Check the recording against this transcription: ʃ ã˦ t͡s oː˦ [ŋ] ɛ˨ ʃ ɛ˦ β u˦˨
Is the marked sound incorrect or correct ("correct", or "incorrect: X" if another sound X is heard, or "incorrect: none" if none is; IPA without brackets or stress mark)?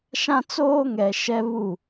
correct